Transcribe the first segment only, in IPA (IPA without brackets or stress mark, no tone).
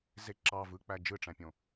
z